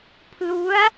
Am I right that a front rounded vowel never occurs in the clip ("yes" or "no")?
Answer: yes